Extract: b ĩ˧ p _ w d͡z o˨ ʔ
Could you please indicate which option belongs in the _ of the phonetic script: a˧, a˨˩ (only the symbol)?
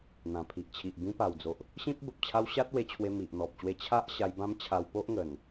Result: a˨˩